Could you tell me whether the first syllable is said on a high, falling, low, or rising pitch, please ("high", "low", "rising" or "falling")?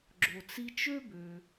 low